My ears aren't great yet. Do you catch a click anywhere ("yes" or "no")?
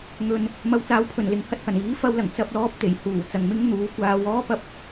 no